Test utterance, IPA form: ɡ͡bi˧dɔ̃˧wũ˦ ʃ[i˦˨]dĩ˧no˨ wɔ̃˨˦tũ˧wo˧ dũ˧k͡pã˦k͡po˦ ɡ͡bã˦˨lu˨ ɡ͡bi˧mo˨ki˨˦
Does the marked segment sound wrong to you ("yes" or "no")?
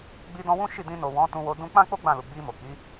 no